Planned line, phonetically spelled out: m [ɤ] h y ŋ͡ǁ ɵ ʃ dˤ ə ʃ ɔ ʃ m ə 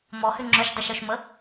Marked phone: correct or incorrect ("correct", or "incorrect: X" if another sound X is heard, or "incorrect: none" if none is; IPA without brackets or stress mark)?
incorrect: ɔ